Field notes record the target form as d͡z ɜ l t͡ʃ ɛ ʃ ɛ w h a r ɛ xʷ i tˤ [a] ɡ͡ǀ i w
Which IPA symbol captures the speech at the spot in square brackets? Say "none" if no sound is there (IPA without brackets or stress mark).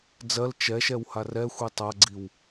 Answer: a